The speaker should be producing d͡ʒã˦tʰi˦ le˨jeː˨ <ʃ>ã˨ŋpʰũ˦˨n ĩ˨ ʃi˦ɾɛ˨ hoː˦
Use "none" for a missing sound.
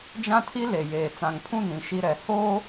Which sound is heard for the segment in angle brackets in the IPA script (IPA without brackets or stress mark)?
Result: t͡s